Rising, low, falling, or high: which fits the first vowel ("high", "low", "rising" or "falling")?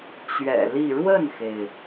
low